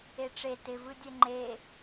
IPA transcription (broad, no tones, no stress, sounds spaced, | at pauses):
e ʈ͡ʂ e t ɪ v ɯ dʲ ɛ ŋ͡ǃ e